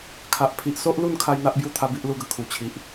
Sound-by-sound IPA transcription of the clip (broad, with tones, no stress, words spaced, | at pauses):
kʰa˨ʔ pʰi˨ʔ so˦ʔlu˥˧nkʰa˧j n̪a˦ʔbju˥˧ t̪ʰa˦bi˦ʔlu˥˧ɡə˨˩ kʰu˨˩t͡ɕʰi˨ʔ